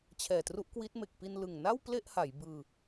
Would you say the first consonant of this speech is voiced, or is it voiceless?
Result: voiceless